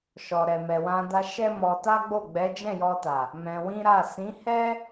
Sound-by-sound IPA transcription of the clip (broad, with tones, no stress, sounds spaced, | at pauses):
ʃ ɔ˨ ɾ ɛ˨ m ɛ˨ w ã˧ d a˧ ʃ ɛ˦ m ɔ˧ t a˦ ɡ͡b o˦˨ ɡ͡b ɛ˨˦ d͡ʒ ɛ̃˦˨ j ɔ˧ t a˨ | m ɛ̃˧ w ĩ˦ ɾ a˦˨ s ĩ˨˦ h ɛ˦